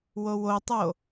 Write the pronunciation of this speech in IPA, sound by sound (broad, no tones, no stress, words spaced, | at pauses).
wowotˤo